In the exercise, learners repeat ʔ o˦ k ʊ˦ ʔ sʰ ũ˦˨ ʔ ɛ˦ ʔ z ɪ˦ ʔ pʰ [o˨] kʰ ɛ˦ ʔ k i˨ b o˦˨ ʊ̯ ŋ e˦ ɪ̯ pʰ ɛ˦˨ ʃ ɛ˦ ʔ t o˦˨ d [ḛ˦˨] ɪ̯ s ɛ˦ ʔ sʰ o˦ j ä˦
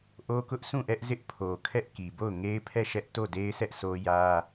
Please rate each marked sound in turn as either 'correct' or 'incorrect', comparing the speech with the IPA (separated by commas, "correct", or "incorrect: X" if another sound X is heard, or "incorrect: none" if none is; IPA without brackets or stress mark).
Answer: correct, incorrect: e˦